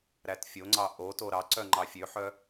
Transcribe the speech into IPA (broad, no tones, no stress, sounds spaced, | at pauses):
ɾ æ t fʲ o ŋ͡ǀ ɑ ʔ o t o ɾ ɑ ǀ œ ŋ͡ǃ ɑ fʲ ø ħ œ